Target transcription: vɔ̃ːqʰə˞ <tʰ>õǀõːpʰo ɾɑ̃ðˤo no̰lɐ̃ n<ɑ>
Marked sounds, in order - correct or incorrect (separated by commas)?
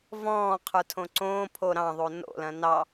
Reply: correct, correct